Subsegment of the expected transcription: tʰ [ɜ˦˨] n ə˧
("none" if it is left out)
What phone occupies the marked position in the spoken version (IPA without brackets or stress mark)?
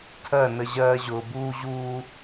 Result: ɜ˦˨